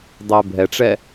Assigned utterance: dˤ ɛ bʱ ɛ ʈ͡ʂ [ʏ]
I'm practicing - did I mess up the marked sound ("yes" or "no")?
yes